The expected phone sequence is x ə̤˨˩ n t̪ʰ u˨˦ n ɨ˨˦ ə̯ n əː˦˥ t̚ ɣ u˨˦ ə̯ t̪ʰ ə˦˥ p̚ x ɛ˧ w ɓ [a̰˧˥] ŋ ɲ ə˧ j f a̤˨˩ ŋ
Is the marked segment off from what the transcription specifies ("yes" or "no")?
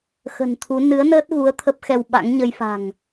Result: no